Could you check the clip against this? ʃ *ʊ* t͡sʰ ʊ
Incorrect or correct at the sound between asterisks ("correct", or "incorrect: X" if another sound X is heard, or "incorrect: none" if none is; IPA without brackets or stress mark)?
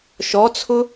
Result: incorrect: ɔ